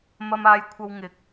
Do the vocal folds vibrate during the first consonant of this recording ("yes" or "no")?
yes